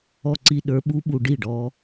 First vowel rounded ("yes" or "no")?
yes